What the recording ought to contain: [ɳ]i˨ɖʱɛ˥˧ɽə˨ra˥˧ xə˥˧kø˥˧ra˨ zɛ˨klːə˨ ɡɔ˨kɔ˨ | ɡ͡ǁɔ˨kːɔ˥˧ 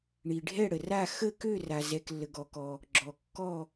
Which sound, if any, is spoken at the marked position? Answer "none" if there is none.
ɳ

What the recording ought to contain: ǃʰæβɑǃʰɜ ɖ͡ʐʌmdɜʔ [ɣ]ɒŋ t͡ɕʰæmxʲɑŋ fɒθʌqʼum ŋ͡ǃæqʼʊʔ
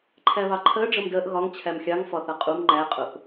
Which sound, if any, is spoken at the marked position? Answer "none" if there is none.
ɣ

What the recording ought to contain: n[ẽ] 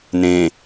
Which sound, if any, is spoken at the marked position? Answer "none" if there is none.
ẽ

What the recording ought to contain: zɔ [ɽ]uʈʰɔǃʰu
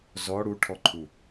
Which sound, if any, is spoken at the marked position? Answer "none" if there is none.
ɽ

